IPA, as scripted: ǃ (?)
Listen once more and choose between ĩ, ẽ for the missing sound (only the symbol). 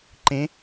ẽ